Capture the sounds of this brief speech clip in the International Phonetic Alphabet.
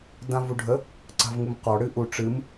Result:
dãvuɖʱə | ǀa̤vŋumqɔ ɽɨʔu ʈ͡ʂɨm

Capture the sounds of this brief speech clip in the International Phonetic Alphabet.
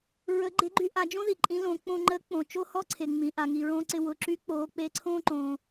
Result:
ɹə˧˥ ɡ͡ǃe˧˥ɡ͡ǃy˧˥ʔa˩˧d͡ʒõ˥ ði˩ǃʼĩ˧˥lõː˩˧ k͡põ˧ŋ͡ǃə˧˥k͡põ˩ t͡ʃo˥hɔ˥ǀʰe˩ ŋ͡mĩ˩ʔa˩ ŋi˩ɹõ˧ǀɪ˧ wʊ˩˧ǁy˧˥k͡poː˩˧ k͡peː˧˥ǀʰõː˥ ǃõː˩

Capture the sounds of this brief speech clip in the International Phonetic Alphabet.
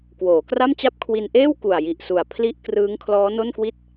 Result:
kwoː˩˦kra˥˩mt͡ɕa˥˩p̚ kʰwi˧nʔeː˥˩w ku˨˩a̯ ji˨˩ʔsu˨˩a̯ pʰli˥˩ʔ krɯː˦˥ŋkʰlɔː˦˥no˥˩nkwi˥˩t̚

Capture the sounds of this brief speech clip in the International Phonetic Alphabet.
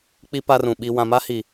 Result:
k͡pi˦ pa˦rũ˨ ɓi˨wã˨ma˦hi˨

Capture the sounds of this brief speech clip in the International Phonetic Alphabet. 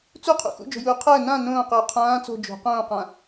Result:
t͡suqʰṵ xṵd͡ʒo̤juː qʰəː nã nõːqʏː qʰãː t͡so̤ d͡ʒo̤ qõːqã

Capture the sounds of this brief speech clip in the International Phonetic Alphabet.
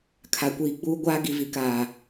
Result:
kʰa˨kʷiː˨ ɡ͡buː˦ɡʷaː˦ ɡi˨vi˨kaː˨

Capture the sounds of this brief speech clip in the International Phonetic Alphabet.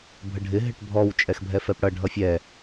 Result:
bʱəɖʱɪ ɦɪʈbʱɔw t͡ʃʼɛxbʱɛfɛpɽʌ ɖʱʌfʲɛ

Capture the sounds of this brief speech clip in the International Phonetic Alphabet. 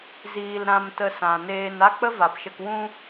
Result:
ziː˨l ɾã˧mtə˧sã˨ neː˧n a˦k͡pə˦va˨pʃə˧k wũ˧

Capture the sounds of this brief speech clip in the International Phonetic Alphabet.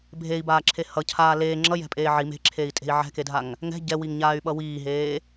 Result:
bʱei̯baːǁʰe hʌcʰaː leː ŋ͡ǁʌjɛ̤pʼeː ʕi me̤ǁʰei̯tʼe̤i̯ ʕɛ̤kedʱaŋ | ŋɛ̤ ɟɛwiŋɲaːy̯ɓʌ wiːɦeː

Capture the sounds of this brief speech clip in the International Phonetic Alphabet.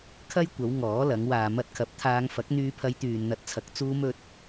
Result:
kʰɐ˥jkʷɐ˨˧w ŋɔː˨˥lɐ˨˧ŋ waː˨mɐ˧t̚kʰɐ˨˥p̚t̪ʰaː˧ŋ fɐ˨˥k̚n̪yː˧pʰɐ˧jt̪yː˨n n̪ɐ˨˥t̚t͡sʰɐ˨˥k̚ t͡suː˧mɵ˧t̚

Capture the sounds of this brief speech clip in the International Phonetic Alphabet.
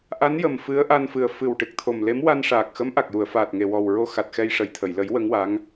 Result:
ʔa˧˥njə˨˩m fɨ˧˥ə̯ʔa˧nfɨ˨˩ə̯ fɨ˨˩w ʈɨ˨˩k̚t̪ʰo˨˩mle˧˥m wa˧nʂaː˨˩k̚xə˧˥m ʔa˨˩k̚ju˨˩˨ə̯faː˨˩t̚ ŋe˨˩wɔ˨˩w ɹo˧xa˨˩t̚xɛ˧j ʂə˨˩jt̪ʰə˨˩˨jlə˨˩˦j wə˧˥ŋwa˧˥ŋ

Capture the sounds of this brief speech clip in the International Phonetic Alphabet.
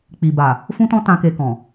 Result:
k͡pi˨ba˨ | fũ˦tɔ̃˦ tã˦ke˧kɔ̃˨

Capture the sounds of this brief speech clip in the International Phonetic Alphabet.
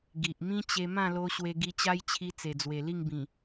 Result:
ɡi˨ʔ mĩ˦t͡ɕe˧ mã˥˧lo˧ ɕwe˧ɡi˧t͡ɕa˦jt͡ɕʰi˧ t͡se˨˩d͡zwe˨˩li˥˧ŋbĩ˨˩

